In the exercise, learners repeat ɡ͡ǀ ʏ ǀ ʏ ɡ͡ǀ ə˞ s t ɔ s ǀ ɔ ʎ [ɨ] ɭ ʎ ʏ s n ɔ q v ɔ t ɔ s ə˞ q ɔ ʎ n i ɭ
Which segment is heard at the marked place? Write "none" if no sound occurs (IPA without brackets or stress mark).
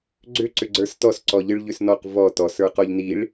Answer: ɨ